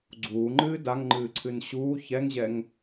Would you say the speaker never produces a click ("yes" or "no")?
no